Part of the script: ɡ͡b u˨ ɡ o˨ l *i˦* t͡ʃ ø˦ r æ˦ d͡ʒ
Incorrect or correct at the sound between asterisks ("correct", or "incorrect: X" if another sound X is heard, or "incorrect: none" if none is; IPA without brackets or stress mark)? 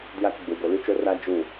incorrect: y˦